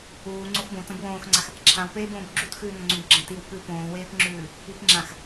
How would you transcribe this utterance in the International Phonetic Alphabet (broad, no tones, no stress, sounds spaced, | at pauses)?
uː ŋ͡ǀ o x b õ t ɐ̃ b w õː x ŋ͡ǀ a x | ǁʰ ã w p eː b õː b ɡ͡ǁ u t x ʉː n ɐ̃ ŋ͡ǀ ũ b ɡ͡ǁ ɐ̃ t i w p ʉ p õː w eː p ŋ͡ǁ ʉː | i p ŋ͡ǁ ã x